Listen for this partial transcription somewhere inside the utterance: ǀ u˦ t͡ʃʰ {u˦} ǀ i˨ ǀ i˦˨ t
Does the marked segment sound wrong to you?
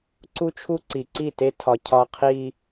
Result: no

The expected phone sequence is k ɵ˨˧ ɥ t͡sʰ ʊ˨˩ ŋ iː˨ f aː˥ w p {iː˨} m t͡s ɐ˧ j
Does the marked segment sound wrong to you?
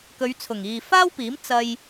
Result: yes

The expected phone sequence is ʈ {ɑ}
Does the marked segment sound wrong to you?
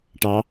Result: no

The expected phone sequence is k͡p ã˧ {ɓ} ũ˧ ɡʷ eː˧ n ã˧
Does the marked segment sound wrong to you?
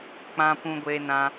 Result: yes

